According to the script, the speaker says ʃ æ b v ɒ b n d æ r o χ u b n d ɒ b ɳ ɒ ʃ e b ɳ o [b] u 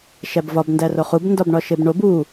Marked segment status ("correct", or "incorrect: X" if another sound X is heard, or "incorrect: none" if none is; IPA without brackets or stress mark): correct